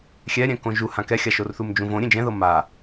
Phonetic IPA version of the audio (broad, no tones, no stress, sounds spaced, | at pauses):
xʲ ɛ ɾʲ ɛ̃ k õ ʒ u h ã k ɛ xʲ a ʃ o r θ u m d͡ʒ ũ v õ ɾʲ ẽ d͡ʒ ɛ̃ ð ɤ m a